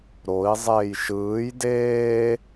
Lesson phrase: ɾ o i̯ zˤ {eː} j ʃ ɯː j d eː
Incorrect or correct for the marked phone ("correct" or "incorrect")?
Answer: correct